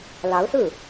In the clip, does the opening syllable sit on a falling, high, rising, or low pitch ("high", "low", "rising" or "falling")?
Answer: rising